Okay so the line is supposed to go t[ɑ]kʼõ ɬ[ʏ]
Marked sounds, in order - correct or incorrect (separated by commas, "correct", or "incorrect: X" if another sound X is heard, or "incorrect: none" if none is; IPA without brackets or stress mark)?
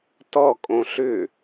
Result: incorrect: ɔ, correct